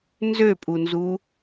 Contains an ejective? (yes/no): yes